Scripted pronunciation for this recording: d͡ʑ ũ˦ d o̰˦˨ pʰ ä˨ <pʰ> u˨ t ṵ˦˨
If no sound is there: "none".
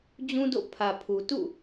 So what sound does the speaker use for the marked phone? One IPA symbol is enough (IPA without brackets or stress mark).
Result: pʰ